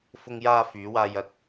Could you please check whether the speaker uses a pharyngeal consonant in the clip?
no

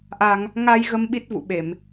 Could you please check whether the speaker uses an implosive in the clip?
yes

